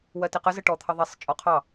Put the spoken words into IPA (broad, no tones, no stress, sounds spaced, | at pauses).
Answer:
w ɜ t ɪ q ə z ə ʈ ɔ t̪ʰ ʌ ðˤ i sˤ t͡ʃʼ ɔ qʰ ɑ